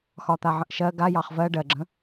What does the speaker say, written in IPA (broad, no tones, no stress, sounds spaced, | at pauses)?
x ɒ t̪ a ʕ ə̃ ʔ ʃ ɜ ɡ a j ɑ χ v ɜ ɖ ɜ ɡ͡ǁ ə̃